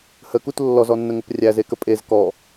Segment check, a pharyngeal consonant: absent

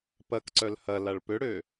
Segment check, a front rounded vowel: present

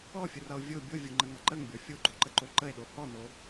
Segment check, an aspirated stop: absent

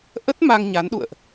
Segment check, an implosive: present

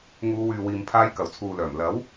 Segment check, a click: absent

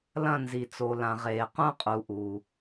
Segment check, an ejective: present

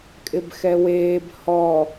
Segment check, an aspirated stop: absent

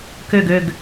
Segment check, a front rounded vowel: present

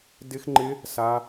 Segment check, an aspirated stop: absent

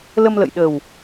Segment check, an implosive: present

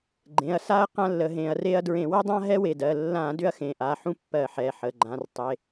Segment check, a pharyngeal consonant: present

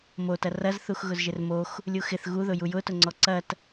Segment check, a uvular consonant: absent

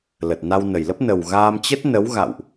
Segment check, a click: absent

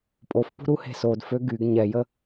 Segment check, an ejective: present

